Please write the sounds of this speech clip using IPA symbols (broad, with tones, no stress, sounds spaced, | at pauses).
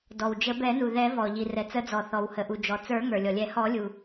d ɔ˩ w d͡ʒ ə˨˩˦ b ɛ˨˩˦ n u˩ ð ɛ˨˩˦ v ɔ˩ ʎ i˩ r ɛ˩ t͡s ə˨˩˦ d͡z ɔ˩ θ ɔ˩ w h ə˩ ʔ u˩ d͡ʒ ɔ˩ t͡s ə˞˨˩˦ ŋ ə˞˩ lʲ ɔ˩ lʲ ɛ˨˩˦ h ɔ˨˩˦ lʲ u˩